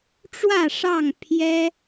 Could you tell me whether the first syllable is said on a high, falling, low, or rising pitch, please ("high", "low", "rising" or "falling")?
falling